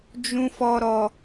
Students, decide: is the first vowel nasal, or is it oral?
nasal